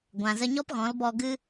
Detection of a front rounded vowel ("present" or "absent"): absent